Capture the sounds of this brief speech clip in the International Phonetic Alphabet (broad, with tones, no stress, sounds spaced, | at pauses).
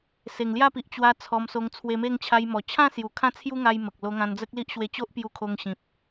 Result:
s e˨˩ ŋ l j a˥˧ p i˨ ʔ t͡ɕ w a˧ t͡sʰ ɔ˧ m s o˧ ŋ t͡sʰ w e˧ m e˥˧ ŋ t͡ɕʰ a˧ j m ɔ˨˩ t͡ɕʰ ã˥˧ s j u˨˩ kʰ ã˥˧ t͡sʰ j u˦ ŋ a˦ j m ə˨ k̚ l o˧ ŋ ã˧ n d͡z ə˦ k̚ l i˦ ʔ ɕ w e˧ t͡ɕ o˦ ʔ p j u˧ kʰ o˧ ŋ ɕ ĩ˨ p̚